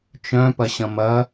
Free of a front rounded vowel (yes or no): no